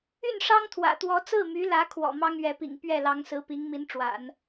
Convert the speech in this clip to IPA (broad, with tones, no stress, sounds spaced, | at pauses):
y˥˩ n ʂ ɑ˥ ŋ t̪ʰ w ä̰˨˩ t̪ w ɔ˧˥ t͡s ɹ̩˥˩ m y˧˥ l ä˧˥ kʰ w ɔ̰˨˩ m ɑ˥ ŋ ɥ ɛ˧˥ p ḭ˨˩ ŋ p ɥ ɛ˥˩ l ɑ˧˥ ŋ s ɹ̩˧˥ p i˧˥ ŋ m i˧˥ n ʈ͡ʂ w a̰˨˩˦ n